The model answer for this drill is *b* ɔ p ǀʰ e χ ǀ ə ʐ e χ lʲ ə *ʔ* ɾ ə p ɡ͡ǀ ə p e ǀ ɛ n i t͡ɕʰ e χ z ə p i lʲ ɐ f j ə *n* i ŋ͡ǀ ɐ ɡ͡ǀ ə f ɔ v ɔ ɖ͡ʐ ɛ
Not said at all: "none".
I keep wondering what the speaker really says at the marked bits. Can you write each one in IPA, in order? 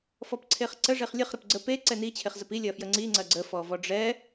f, χ, ŋ͡ǀ

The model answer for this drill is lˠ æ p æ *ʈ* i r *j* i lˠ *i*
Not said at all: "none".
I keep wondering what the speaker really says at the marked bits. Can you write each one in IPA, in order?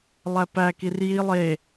k, j, e

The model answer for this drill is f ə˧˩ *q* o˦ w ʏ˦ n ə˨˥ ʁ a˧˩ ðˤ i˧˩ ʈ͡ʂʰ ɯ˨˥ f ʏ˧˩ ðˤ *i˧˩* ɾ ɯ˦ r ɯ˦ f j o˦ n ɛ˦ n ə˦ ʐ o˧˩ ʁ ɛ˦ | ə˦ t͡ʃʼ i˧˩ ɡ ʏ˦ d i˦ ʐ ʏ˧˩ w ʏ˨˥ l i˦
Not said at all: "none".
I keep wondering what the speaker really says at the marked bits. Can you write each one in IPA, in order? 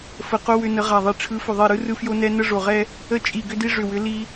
q, i˧˩

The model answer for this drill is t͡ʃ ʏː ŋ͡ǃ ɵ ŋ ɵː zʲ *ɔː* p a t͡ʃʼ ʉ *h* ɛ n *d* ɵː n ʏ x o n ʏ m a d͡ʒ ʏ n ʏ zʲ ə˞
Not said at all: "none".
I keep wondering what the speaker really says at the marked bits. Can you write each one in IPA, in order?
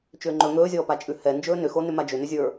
ɔː, h, d͡ʒ

